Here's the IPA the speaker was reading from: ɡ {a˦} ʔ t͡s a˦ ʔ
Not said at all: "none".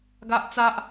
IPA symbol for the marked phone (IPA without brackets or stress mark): a˦